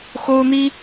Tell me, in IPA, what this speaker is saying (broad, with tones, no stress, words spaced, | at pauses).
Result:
xo˦ʊ̯n̪i˦